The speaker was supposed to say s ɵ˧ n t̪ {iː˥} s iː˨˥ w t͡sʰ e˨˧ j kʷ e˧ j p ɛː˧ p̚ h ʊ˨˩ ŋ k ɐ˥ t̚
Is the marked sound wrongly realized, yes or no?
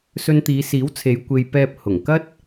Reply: yes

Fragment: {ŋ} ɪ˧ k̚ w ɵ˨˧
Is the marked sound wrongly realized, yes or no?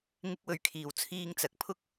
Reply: no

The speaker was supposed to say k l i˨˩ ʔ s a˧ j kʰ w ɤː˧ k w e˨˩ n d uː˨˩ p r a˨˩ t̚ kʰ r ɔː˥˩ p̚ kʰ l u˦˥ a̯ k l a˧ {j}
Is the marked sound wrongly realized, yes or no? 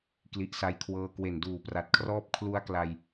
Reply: no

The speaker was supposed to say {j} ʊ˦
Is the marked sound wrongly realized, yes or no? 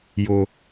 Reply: no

